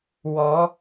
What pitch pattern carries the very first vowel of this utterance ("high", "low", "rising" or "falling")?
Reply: rising